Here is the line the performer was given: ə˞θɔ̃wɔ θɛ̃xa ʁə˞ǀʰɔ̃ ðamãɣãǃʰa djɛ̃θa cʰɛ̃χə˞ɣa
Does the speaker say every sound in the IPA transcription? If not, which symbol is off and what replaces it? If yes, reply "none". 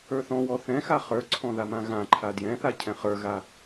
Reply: ʁ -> χ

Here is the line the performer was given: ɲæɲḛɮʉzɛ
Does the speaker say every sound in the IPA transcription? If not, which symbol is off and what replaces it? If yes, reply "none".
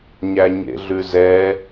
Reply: none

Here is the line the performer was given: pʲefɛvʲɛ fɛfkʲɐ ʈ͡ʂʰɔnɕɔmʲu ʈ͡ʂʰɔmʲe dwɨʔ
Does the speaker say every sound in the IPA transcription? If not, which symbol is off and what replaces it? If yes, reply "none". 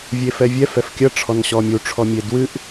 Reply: pʲ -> vʲ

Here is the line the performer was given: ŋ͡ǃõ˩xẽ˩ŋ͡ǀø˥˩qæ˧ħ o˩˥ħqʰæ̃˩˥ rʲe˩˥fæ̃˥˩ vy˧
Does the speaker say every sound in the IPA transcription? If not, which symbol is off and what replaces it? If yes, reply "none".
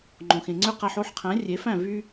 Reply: none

